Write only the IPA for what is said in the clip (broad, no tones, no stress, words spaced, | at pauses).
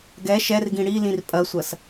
ɡɛ ʃɛrɡĩ ɽi lĩrpʼɐsʷɐs